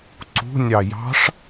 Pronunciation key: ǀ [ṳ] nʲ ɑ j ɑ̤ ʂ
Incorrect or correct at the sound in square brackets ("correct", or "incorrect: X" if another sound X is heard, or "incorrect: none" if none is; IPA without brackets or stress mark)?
correct